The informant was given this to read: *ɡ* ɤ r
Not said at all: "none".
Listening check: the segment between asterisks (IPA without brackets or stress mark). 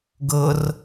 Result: ɡ